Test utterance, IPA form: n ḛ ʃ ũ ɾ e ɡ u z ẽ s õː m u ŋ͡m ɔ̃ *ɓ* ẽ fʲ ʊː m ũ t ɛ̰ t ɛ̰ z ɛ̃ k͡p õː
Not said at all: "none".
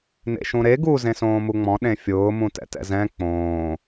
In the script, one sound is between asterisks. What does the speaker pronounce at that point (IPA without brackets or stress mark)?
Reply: ɗ